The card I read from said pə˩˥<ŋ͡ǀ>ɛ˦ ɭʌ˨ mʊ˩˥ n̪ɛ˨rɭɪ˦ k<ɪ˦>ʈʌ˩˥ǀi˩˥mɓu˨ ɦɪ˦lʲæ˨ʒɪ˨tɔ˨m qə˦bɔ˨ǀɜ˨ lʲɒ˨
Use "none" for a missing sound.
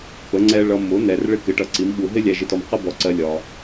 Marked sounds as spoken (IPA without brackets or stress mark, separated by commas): ŋ͡ǀ, ɪ˩˥